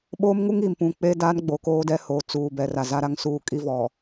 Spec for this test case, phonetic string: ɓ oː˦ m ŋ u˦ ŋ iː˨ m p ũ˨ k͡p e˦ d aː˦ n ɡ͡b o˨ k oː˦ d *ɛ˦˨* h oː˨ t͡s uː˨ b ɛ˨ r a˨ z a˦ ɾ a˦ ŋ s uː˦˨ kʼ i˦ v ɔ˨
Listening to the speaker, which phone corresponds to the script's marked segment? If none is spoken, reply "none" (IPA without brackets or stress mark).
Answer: ɛ˦